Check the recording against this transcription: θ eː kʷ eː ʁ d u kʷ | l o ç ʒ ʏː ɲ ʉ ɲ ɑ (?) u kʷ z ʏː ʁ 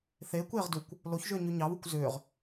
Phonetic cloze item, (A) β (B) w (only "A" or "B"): A